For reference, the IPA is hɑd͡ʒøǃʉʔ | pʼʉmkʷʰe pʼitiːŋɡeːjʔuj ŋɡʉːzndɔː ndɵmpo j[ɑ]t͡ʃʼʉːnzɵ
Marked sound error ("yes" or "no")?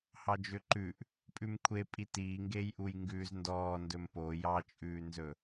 no